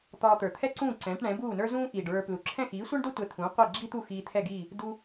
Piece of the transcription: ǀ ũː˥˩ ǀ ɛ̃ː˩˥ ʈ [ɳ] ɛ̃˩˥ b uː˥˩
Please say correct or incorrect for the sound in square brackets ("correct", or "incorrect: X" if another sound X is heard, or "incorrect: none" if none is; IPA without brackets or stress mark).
correct